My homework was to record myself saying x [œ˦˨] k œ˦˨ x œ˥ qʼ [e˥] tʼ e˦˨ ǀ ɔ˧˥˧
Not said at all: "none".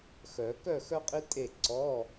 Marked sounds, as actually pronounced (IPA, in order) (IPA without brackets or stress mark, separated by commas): œ˨˩˦, i˥